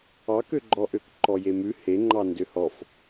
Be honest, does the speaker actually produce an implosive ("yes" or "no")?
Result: no